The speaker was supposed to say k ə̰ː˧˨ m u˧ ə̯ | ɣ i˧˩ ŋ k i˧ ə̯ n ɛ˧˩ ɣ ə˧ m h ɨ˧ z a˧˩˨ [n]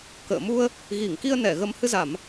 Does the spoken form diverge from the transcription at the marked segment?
yes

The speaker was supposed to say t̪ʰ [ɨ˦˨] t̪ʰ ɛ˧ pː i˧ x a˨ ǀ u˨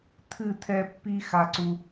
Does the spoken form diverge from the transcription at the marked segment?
no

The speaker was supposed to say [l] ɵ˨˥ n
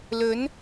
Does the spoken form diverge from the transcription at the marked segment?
no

